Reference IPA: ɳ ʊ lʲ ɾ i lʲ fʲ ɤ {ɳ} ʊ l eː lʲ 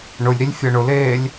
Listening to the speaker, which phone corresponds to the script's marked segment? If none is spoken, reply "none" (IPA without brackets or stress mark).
ɳ